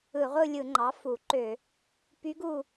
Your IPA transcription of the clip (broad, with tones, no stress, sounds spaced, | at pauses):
ɯ˧˩˧ ʁʷ ɯ˦˨ lʲ ɯ˧˩˧ ŋ͡ǃ ɑ˩˥ f u˧˩˧ ǃ ø˧˩˧ | p y˧˥ ɡ u˦˨